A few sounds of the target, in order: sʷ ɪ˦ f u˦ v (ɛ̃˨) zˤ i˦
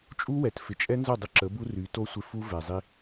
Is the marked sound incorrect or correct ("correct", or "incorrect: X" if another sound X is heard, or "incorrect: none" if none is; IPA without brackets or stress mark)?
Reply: incorrect: ɛ˨